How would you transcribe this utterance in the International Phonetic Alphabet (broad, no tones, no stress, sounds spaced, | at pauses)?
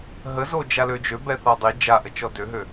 ɦ ə z o d͡ʒ a l ø d͡ʒ ø b ɛ θ a dˤ i d͡ʒ a ʔ ə t͡ʃ ɔ d ø ɦ ø